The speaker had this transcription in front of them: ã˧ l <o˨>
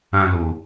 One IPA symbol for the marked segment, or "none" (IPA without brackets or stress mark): o˨